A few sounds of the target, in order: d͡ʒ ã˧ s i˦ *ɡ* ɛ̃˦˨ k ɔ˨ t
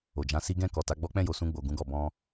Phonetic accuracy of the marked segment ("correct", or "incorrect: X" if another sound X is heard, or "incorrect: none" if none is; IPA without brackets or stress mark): correct